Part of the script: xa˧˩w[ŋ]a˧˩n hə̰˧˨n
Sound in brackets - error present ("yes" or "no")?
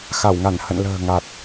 no